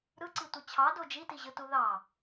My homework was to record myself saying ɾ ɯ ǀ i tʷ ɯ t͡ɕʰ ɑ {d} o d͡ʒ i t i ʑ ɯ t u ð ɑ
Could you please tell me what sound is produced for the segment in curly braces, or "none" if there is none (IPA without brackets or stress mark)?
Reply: d